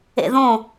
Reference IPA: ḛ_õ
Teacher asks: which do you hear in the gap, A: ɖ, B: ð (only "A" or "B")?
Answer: B